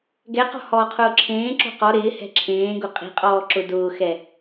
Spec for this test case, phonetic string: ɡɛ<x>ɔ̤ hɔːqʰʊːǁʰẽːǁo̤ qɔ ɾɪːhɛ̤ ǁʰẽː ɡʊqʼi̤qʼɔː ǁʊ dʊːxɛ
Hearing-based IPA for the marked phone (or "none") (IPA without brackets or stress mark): q